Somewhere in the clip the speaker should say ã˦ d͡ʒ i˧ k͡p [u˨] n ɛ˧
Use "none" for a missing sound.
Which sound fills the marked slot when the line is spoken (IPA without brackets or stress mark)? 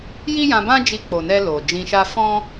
o˨